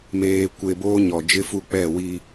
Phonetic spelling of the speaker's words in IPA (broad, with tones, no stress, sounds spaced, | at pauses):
m eː˨ kʷ e˨ b oː˦ ɲ ɔ˨ d͡ʒ ɪ˦ f u˦ k͡p ɛ˦˨ w i˦